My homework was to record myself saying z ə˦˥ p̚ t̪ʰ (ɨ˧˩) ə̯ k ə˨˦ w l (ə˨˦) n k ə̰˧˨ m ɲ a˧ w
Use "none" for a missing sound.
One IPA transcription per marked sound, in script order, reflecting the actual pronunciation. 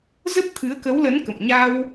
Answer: ɨ˨˦, ə˨˦

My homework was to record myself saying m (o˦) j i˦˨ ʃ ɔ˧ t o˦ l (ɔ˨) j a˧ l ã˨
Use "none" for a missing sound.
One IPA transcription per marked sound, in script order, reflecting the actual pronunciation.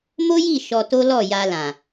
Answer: o˦, ɔ˦˨

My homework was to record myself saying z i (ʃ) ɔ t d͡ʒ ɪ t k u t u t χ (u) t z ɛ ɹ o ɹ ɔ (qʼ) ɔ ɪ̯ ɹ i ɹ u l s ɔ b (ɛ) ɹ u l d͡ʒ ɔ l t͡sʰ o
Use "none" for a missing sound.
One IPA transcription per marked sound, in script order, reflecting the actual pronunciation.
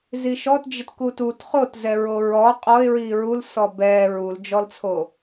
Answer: ʃ, o, qʼ, ɛ

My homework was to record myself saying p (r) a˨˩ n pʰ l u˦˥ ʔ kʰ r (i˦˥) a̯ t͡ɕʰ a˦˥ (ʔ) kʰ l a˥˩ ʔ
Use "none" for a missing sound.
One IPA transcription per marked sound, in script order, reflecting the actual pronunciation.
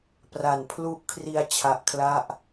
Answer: r, i˧, ʔ

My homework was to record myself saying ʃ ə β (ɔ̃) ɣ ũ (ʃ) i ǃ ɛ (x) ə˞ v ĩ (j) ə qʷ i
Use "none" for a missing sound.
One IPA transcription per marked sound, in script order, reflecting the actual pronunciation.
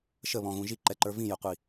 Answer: ɔ̃, ʒ, ǃ, j

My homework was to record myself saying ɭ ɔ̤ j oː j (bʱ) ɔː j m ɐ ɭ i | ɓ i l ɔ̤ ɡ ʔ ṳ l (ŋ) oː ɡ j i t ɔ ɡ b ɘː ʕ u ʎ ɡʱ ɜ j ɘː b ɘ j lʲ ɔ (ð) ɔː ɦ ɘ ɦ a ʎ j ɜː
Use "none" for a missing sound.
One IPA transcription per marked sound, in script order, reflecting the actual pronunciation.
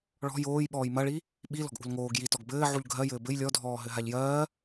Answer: ɓ, ŋ, dʱ

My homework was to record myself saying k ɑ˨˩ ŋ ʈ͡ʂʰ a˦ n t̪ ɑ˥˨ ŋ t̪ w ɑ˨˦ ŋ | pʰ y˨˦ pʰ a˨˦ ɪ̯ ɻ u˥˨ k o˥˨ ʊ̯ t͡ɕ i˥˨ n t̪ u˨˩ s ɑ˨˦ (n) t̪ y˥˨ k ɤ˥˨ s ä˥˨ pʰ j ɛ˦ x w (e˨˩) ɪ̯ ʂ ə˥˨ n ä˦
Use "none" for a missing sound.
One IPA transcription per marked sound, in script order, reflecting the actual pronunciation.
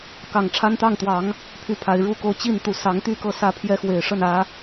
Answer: ŋ, e˨˩

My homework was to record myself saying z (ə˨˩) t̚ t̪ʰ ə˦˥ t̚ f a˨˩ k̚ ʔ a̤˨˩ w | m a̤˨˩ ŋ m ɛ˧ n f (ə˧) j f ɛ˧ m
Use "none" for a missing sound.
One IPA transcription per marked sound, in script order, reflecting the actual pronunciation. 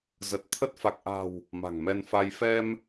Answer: ə˨˩, a˧

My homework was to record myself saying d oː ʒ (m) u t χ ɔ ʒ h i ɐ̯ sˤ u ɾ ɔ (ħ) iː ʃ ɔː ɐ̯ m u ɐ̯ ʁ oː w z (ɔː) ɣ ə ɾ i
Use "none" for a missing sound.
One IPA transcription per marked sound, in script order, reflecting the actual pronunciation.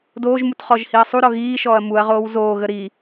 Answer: m, ɣ, oː

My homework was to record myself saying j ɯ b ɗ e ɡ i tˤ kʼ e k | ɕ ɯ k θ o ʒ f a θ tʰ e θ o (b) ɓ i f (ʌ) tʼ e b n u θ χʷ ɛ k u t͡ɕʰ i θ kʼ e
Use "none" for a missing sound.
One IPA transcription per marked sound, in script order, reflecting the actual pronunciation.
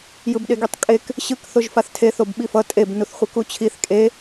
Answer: b, ʌ

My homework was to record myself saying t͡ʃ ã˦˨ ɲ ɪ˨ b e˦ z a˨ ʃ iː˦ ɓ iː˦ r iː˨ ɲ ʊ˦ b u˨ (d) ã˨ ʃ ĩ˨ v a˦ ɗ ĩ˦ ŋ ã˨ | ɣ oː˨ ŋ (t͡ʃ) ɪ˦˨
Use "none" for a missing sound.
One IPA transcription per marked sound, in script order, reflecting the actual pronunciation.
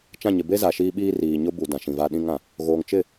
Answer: d, t͡ʃ

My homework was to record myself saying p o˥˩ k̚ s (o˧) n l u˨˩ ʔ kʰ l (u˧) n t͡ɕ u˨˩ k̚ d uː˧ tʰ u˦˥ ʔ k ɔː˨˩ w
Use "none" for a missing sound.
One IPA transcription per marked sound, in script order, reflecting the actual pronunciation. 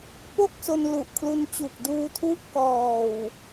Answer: o˧, u˧

